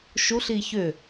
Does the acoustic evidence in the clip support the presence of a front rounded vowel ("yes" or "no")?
yes